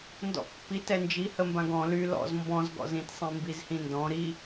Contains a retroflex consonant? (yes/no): no